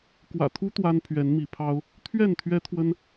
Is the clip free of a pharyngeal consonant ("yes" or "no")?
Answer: yes